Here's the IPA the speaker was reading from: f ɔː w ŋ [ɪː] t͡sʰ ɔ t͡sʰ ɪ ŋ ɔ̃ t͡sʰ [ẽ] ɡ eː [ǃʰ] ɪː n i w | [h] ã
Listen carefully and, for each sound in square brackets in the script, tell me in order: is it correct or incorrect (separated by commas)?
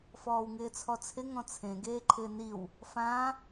correct, correct, correct, incorrect